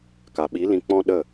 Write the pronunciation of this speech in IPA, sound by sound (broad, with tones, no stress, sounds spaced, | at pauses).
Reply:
k a˨ ɓ i˨˦ l ĩ˧ k͡p ɔ̃˦ ɗ ə˦˨